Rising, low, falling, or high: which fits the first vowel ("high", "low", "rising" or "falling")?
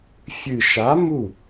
low